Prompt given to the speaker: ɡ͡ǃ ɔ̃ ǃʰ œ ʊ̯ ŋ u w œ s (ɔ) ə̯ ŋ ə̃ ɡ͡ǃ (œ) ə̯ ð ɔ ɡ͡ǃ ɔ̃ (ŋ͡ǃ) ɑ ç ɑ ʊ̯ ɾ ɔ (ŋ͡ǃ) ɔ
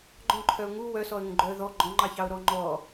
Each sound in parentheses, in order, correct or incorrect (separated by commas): correct, correct, correct, correct